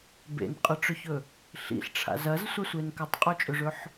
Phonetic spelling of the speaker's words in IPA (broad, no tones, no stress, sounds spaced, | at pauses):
b ḛ n qʼ ɨ ʈ͡ʂ ɵ ç ɵ | ɬ ḭ ɬ ʈ͡ʂʰ a̰ z ɐ z sʷ a sʷ e n k ɐ tˤ qʼ o t͡ʃʼ ɵ ʐ ɵ ħ